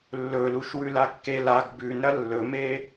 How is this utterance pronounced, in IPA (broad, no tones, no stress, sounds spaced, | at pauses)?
lː ɵ l u ʃ w ʉ l a kː e l a ɡ b ʉ n ɾ ɐ lː ɵ m e